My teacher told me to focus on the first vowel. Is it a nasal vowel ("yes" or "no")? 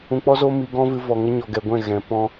yes